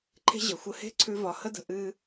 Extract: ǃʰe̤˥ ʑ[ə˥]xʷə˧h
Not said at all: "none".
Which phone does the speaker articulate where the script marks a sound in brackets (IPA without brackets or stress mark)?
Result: ə˩